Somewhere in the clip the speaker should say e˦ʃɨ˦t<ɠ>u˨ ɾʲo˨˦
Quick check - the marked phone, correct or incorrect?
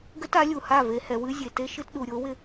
incorrect